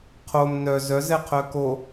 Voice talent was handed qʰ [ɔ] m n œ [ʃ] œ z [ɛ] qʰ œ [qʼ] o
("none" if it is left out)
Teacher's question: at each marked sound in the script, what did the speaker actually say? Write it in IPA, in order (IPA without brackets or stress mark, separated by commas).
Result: o, z, ɛ, k